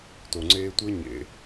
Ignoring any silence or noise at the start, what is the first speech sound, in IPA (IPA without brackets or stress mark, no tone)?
t